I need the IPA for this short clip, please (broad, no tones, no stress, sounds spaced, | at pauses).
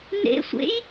n ḛ sʷ ḛ j